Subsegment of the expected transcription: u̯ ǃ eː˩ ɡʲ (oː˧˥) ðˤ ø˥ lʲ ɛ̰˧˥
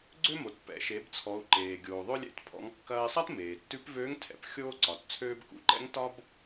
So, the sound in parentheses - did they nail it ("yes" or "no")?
no